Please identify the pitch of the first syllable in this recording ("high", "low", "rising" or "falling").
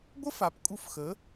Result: high